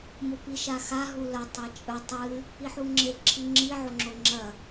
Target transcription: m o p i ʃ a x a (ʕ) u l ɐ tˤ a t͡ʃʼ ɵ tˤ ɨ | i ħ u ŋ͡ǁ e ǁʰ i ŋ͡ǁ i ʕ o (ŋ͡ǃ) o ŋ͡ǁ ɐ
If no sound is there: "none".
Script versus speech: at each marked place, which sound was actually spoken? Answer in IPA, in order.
ɦ, ŋ͡ǁ

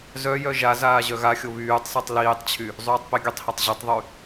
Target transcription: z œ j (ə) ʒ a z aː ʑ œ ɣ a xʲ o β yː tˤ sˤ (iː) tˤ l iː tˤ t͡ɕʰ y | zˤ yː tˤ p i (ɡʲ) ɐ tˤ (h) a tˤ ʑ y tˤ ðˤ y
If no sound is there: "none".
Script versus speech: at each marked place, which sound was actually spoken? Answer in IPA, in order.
œ, i, ɡʲ, h

